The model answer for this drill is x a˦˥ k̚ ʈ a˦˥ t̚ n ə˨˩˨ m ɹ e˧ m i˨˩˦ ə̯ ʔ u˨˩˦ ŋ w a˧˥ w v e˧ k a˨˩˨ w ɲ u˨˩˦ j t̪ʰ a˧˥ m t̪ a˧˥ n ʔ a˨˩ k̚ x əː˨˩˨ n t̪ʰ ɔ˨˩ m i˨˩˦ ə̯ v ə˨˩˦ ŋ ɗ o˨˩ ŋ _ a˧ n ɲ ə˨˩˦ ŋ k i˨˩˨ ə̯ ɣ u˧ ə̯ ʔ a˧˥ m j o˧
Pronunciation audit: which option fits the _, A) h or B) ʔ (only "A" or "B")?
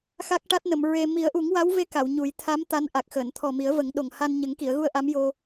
A